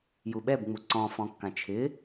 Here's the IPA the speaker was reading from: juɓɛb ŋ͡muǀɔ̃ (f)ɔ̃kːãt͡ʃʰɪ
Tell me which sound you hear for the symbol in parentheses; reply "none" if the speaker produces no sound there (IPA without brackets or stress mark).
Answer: f